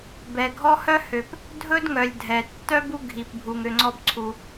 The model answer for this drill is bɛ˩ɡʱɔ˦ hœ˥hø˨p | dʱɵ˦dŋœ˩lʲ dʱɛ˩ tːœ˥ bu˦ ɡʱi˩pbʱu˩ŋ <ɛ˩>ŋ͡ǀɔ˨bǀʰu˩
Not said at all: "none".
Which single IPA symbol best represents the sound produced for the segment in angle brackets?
ø˩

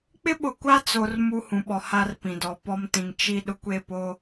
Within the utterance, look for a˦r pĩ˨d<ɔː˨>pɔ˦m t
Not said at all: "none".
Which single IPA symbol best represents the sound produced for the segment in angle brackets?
ɔ˨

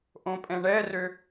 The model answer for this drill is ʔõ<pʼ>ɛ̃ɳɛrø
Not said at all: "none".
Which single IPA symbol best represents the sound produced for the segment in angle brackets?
pʼ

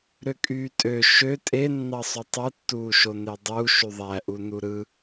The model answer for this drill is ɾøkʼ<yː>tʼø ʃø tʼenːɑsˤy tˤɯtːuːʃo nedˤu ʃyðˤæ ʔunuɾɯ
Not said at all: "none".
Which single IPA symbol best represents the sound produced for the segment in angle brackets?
yː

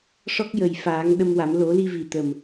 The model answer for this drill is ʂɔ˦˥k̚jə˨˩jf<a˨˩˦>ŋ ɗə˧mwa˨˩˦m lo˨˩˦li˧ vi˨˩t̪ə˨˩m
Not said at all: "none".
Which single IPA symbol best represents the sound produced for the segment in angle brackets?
aː˨˩˦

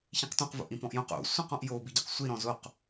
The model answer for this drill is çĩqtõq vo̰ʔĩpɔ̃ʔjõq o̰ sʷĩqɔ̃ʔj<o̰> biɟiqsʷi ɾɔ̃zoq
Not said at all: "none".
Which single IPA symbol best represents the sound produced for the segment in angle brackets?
o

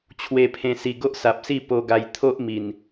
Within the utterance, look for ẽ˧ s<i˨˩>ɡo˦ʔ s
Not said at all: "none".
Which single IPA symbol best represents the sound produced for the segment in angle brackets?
i˨˩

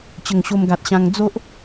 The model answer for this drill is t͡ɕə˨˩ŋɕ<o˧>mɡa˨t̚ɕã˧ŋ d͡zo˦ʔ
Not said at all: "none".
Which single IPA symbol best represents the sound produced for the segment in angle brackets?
o˧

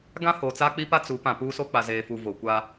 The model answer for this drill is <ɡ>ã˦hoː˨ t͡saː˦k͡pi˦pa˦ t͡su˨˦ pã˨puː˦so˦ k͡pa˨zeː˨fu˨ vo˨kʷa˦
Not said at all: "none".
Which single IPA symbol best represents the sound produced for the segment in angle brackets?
ɡ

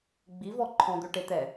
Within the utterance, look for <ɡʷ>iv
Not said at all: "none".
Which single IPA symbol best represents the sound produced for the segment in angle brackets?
ɡ͡b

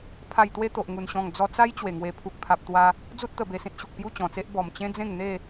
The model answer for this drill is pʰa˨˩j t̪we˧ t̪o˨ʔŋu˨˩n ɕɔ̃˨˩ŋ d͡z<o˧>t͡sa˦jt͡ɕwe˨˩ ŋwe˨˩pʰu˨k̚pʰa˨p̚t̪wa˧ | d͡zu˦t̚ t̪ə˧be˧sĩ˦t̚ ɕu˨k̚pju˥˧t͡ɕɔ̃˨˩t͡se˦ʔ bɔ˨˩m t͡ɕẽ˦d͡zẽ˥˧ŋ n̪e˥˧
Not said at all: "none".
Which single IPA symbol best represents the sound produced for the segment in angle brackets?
ɔ˧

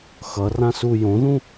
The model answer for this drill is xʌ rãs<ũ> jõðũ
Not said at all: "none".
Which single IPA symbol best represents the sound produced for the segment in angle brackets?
u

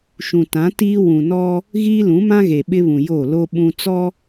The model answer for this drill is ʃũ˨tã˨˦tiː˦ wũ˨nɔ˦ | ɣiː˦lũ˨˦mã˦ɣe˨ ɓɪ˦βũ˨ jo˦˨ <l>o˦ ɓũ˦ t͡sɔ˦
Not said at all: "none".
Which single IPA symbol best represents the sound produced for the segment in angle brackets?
l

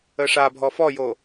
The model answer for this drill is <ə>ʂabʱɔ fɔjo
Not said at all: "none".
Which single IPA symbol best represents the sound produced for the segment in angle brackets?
ə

